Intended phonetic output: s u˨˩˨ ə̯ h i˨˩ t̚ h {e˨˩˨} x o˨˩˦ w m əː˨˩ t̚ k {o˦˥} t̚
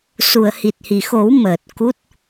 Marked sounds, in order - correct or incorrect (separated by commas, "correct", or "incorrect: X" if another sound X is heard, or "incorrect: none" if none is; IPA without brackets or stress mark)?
incorrect: i˨˩˨, incorrect: u˦˥